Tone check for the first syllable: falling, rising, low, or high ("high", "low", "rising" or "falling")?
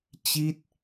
falling